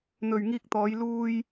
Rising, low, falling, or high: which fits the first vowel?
low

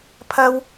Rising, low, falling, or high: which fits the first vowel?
high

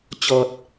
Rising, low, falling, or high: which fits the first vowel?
low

